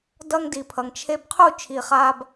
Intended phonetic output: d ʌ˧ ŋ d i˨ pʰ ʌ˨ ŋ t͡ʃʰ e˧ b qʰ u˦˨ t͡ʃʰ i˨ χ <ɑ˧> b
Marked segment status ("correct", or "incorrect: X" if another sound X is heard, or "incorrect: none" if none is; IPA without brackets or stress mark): incorrect: a˧